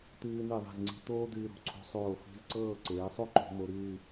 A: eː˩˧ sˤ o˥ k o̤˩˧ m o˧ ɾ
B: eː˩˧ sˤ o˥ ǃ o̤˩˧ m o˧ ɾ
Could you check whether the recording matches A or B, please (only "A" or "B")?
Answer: B